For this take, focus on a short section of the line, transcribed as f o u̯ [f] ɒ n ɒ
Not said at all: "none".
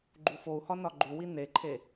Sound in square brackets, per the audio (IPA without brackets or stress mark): h